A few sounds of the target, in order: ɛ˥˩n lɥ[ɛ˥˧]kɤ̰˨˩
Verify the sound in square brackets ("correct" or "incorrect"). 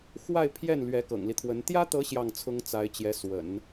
incorrect